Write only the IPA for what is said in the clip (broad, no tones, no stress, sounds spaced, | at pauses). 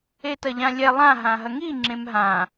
e t ɐ ʎ ã lʲ ɛ lˠ ã ɦ ã ɦ ɐ ŋ i ŋ͡ǁ ẽ m ɦ ã